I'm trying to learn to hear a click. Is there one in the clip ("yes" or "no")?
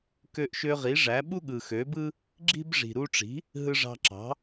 yes